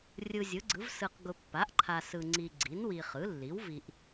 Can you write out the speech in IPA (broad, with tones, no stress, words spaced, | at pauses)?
rʲɯ˨zʲɯ˩˥ɡ͡ǀɯ˩˥v sɯ˨q ɡʊ˨pːa˩˥ʔǃʰa˨ sɯ˨ŋ͡ǀi˨ɡ͡ǀi˩˥nwi˨ χɯ˩˥lːi˩˥wvi˨ʔ